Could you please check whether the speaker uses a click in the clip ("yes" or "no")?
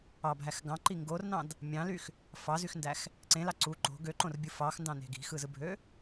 yes